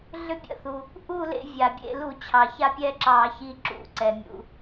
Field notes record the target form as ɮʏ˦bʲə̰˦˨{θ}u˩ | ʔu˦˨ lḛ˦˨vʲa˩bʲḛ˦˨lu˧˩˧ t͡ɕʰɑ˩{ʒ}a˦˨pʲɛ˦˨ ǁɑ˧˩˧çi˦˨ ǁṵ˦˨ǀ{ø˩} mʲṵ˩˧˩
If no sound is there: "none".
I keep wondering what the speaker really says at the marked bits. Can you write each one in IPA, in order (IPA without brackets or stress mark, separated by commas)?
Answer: θ, ç, ɛ˩